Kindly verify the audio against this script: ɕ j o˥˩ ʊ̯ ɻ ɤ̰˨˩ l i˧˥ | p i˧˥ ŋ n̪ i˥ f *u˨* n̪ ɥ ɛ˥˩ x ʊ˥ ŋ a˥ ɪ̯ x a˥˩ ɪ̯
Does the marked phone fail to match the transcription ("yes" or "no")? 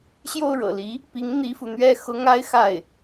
no